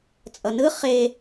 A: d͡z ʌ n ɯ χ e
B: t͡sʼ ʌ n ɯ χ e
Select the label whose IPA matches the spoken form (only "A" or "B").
B